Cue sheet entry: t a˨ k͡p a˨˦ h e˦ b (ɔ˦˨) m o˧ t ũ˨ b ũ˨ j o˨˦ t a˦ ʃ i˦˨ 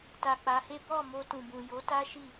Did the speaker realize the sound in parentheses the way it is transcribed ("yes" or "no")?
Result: yes